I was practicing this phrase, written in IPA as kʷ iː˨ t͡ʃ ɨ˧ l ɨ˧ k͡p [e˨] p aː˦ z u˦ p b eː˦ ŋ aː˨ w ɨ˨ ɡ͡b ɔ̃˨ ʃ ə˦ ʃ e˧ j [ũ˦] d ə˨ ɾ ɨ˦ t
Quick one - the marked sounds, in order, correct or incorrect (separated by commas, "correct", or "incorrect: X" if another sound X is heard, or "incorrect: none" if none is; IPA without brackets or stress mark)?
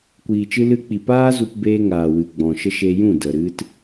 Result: incorrect: i˨, incorrect: ũ˦˨